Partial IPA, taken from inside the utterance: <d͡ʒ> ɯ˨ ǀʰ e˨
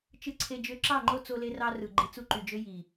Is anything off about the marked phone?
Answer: yes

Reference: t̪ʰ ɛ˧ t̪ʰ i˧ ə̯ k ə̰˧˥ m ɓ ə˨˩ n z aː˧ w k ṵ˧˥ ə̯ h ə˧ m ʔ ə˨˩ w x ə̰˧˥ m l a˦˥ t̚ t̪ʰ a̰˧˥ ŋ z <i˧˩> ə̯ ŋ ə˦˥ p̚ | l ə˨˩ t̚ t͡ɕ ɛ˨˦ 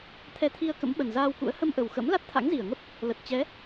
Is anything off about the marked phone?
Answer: no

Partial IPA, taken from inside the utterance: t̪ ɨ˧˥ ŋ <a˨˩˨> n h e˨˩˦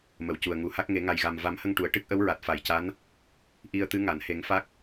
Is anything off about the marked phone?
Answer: no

